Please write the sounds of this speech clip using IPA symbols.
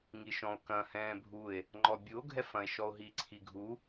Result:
ŋ i ʃ ɔ̃ o̯ k ɐ̃ h ɛ̃ː bʱ u e̯ | ŋ͡ǃ ɔ bʲ u o̯ ɡʱ ɛ f ɐ̃ e̯ ʃ ɔ o̯ ɦ i ǀʰ i ɡʱ u

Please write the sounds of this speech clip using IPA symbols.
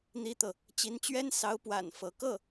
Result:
n̪ i˥ t̪ ɤ˨ | t͡ɕ i˧˥ n t͡ɕ ɥ ɛ˥ n s ɑ˧˥ ʊ̯ p w a̰˨˩ n f ɤ˧˥ k ɤ˥˩

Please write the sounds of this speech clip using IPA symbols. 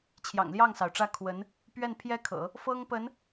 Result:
t͡ɕʰ j ɑ̰˨˩ ŋ l j ɑ˥˩ ŋ s ɑ˩ ʊ̯ ʈ͡ʂ ä˥˩ kʰ w ə˧˥ n | p ɥ ɛ˥˩ n pʰ j ɛ˥ kʰ ɤ̰˨˩˦ | f ɤ˥ ŋ p ə˧˥ n

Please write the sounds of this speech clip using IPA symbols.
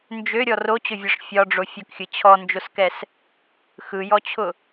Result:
n d͡ʒ ø ɾʲ ɔ r o t͡ɕ ʊ vʲ ɒ ʂ fʲ ɒ ɖ͡ʐ o fʲ ʊ k xʲ ɯ t͡ɕʰ ɔ n d͡ʒ o s k ɛ s | x ɯ j ɔ t͡ɕʰ ʊ

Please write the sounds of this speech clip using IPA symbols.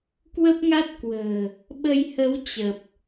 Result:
k w ə˦˥ p̚ ŋ a˦˥ t̚ k w ə̤ː˨˩ | ɓ ə˧ j h ə˨˦ w t͡ɕ ə˨˩ p̚

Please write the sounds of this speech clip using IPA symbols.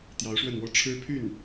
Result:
t̪ j ɑ˧˥ ʊ̯ ʂ w ə˥˩ n w ɔ˥ ʈ͡ʂʰ ɻ̩˥ pʰ y˥˩ n

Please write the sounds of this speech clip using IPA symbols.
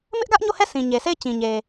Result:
m ɪ˦ ʔ ɡ ä˦ ʔ ɲ o˦˨ h ɛ˦˨ s ĩ˨ ɲ e˨ sʰ e˦˨ ɪ̯ t͡ɕ ĩ˨ ɲ e˨

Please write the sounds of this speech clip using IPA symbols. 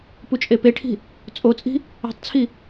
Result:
p u t͡ʃʼ e p e ʈʰ i̤ | t͡sʼ o t͡sʼ i̤ | e̤ tˤ t͡sʰ i

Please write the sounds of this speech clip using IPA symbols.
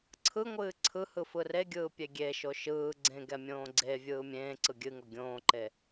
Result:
ǀʰ ɯ ŋʷ ɨː ǀʰ ɯ h ɯ f ɯ r e ɡʲ ɯː pʲ e ɡʲ e ʃ o ʃ ɯː ɡ͡ǀ ẽ ɡ ɛ mʲ õː ɡ͡ǀ e vʲ ɯː mʲ ẽː ǀ ɯ ɡʲ ɨ ŋ o ɡʲ õː ǃ e

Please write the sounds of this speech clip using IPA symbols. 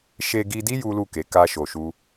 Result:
ʃ e˧ ɡ i˧ d i˦ j u˦ l u˦˨ k e˨˦ k a˦ ʃ o˧ ʃ u˦

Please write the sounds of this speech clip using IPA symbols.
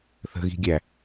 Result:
θ ə̤ ɣ i̤ ɡʲ æ

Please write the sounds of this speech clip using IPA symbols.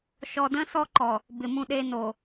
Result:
ʃ ɔ˨ d ə̃ː˦ s ɔ˦ ǃ ɔ˨ | b ɪ˨ m ũ˦ ɗ eː˦ n o˨

